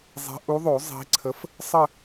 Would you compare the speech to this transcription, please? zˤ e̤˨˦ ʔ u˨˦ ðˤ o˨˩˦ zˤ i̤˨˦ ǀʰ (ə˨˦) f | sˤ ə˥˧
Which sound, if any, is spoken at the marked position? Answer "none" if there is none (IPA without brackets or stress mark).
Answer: ə˨˦